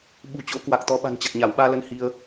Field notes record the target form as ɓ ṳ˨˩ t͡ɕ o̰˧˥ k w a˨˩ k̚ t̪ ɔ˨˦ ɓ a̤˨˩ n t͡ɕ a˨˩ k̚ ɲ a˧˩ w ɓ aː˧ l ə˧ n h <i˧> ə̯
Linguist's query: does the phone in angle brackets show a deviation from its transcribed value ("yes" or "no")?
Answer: no